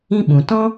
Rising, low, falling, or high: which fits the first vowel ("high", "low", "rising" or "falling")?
high